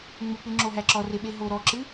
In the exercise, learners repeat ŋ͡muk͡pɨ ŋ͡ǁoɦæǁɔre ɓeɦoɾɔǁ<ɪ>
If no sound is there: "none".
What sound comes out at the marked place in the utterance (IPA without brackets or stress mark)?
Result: ɨ